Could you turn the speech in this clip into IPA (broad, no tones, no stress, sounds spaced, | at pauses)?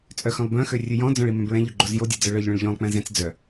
t͡sʼ œ x œ̃ lˠ b œ̃ x ø rʲ ʉ j ɔ̃ d͡z ɔ̃ ɭ i m œ̃ b ɹ ɛ̃ ʎ ɵ ɡ͡ǃ o z j o dʲ ɛ d͡z œ ɭ œ ʎ ɭ œ̃ ɭ ʎ ɔ̃ lˠ k͡p ɛ̃ z ɛ̃ t͡s d͡z œ